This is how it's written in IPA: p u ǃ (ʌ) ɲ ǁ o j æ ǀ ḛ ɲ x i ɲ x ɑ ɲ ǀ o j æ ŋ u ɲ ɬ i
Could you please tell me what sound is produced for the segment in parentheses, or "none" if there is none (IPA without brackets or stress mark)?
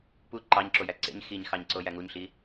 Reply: ɑ